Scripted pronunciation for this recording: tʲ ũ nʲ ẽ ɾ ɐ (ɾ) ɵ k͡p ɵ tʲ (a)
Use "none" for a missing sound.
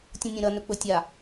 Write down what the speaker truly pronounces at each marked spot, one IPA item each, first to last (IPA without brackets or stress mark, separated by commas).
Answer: n, a